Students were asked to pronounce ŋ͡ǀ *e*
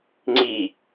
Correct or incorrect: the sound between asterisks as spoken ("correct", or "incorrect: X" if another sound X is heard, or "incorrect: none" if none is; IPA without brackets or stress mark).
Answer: incorrect: i